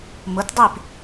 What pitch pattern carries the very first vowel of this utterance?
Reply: rising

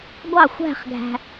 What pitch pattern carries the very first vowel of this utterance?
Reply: falling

